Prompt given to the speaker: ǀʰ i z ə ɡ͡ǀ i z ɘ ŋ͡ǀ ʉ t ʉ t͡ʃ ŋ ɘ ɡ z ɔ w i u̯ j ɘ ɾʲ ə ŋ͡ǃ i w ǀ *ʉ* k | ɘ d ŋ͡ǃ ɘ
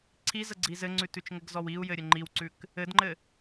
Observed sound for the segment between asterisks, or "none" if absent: ʉ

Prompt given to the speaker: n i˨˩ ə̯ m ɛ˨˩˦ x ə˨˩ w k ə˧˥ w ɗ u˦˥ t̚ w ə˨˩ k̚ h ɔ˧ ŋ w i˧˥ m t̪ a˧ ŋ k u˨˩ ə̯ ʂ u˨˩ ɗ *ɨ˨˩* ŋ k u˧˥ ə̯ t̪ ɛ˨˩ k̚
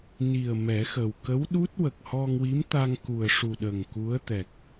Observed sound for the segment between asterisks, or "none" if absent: ə˨˩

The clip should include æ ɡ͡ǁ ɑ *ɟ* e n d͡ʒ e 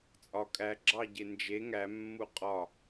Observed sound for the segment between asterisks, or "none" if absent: ɟ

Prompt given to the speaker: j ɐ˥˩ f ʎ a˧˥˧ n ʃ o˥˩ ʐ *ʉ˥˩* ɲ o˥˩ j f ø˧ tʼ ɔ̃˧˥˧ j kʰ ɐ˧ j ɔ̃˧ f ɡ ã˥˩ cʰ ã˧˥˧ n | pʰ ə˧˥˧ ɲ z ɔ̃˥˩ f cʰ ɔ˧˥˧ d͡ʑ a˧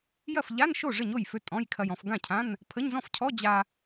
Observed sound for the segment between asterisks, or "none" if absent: ə˥˩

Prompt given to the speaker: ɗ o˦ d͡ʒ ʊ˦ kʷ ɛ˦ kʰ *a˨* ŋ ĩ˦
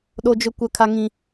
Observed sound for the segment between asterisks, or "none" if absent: a˦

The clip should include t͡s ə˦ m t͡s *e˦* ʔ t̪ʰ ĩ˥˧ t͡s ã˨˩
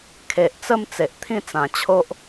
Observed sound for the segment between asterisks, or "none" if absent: e˨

